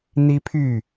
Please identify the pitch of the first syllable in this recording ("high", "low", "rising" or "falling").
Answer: high